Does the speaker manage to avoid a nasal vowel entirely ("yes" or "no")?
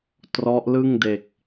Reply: yes